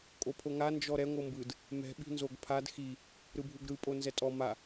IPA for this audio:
kʼ o pʰ o ŋ a n d͡ʒ ɔ ɾ ɛ ŋʷ ɤ m b ɯ d | m ɛ̤ ɓ i̤ n z o ɡ pʰ a d x i | ɾ ɯ bʱ u ɡ ɾ ɯ pʼ o n z ɛ tʼ ɔ m a

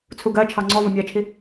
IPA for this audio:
t͡sʰ u ɡ ɜ t͡ʃʰ ɑ ŋ͡ǀ ɔ v ʌ mʲ ɜ t͡ʃʰ i

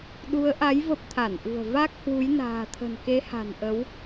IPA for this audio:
ɗ u˨˦ ə̯ ʔ a˨˦ j v ə˦˥ p̚ t̪ʰ a˧˩ n ʔ ṳ˨˩ ə̯ v a˦˥ k̚ h w u˨˦ j n a̤ː˨˩ t̪ʰ ə̤˨˩ n k e˨˦ h a̤˨˩ n ʔ ə˨˦ w

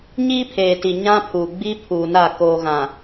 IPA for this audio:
ɲ iː˦ pʰ eː˨ t i˨ ɲ ã˦ pʰ u˨ ɡ͡b i˦ pʰ uː˨ n a˦˨ k oː˨ ɣ ã˨

